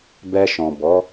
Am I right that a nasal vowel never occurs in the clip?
no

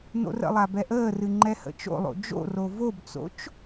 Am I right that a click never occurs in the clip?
no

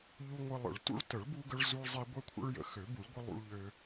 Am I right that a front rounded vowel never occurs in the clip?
no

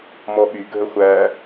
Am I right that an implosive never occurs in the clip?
no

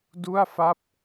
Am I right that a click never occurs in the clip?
yes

